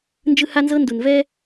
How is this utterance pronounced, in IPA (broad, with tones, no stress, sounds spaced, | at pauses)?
n d͡ʒ ɯ˦ h a˦ n z ɤ˦ n d u˨ n v ɛ˦